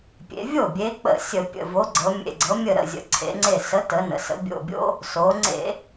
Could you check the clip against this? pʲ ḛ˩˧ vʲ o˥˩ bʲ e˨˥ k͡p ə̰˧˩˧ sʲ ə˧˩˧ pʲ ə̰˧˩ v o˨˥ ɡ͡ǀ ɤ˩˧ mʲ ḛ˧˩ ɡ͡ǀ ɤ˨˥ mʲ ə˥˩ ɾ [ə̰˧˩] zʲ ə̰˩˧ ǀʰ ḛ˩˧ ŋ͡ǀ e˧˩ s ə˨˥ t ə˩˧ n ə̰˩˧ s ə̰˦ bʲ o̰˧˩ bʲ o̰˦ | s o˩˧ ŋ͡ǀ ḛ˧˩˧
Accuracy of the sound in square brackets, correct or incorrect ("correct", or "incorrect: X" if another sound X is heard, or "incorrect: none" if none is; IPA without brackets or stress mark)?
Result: correct